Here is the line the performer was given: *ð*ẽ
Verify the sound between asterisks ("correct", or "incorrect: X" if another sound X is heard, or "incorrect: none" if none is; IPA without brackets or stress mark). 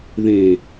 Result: correct